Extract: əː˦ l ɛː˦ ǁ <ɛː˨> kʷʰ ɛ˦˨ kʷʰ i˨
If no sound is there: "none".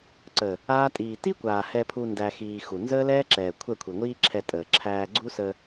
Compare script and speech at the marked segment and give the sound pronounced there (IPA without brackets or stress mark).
ɛː˨